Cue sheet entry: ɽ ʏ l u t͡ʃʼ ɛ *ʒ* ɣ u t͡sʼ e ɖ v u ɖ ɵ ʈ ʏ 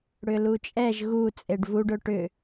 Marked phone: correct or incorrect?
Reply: correct